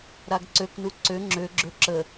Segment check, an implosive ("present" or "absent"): absent